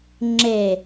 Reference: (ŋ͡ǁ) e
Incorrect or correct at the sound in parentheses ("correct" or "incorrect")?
correct